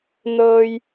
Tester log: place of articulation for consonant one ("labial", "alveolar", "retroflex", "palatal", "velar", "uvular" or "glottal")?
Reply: alveolar